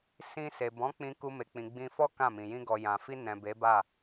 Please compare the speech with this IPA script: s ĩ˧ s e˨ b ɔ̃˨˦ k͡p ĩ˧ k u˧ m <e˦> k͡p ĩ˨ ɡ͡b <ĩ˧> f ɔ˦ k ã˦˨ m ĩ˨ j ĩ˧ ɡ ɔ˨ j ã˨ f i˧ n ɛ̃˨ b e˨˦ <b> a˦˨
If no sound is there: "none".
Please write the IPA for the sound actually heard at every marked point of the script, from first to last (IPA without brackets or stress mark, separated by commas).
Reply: e˨, ĩ˧, b